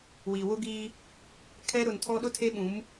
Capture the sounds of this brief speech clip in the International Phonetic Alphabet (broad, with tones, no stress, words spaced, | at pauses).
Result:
wi˨wʊ˦ɡiː˦ | kʰɛ˦ɾʊ˨ntʰɔ˦ ɗʊ˦tʰe˦ɓũ˨˦m